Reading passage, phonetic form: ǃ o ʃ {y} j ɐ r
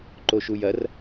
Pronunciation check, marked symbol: incorrect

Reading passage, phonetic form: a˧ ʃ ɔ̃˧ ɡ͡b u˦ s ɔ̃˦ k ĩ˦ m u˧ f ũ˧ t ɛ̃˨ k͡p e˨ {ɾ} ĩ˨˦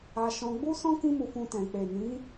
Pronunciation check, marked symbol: incorrect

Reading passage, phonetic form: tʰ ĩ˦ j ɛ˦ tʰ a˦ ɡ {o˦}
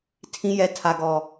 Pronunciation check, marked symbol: incorrect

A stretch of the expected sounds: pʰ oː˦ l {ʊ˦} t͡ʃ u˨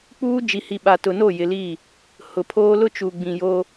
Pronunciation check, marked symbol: correct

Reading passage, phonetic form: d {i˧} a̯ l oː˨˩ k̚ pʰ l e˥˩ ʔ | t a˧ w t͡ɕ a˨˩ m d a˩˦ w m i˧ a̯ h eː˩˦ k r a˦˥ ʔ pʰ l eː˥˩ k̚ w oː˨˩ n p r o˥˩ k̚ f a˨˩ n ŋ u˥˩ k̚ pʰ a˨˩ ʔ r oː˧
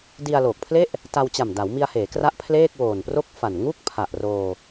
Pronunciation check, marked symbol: correct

